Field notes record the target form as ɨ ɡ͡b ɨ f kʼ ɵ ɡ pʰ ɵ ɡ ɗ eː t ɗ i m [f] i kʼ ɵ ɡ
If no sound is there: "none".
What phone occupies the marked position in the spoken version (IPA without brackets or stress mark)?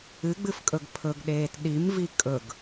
v